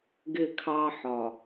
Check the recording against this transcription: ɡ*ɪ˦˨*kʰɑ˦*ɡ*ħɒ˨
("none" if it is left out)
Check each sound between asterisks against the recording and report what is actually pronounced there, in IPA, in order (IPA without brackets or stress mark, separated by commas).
ɪ˦˨, none